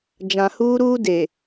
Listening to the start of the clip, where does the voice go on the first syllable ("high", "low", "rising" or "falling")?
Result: low